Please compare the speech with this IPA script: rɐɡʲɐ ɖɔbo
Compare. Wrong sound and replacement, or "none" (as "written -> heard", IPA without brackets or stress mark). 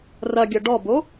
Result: none